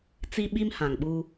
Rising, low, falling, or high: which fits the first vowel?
high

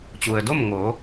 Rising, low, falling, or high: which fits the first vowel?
low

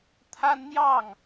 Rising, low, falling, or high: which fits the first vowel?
high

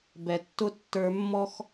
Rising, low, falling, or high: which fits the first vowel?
low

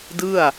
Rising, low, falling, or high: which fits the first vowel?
falling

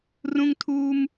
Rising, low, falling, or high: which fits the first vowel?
high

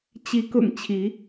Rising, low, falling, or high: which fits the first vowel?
rising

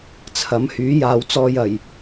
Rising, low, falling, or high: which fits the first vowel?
rising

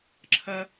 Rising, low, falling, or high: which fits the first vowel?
high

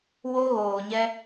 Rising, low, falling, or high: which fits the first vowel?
high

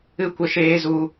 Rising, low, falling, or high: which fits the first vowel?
high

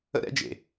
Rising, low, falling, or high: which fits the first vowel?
high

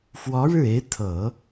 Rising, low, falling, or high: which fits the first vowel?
rising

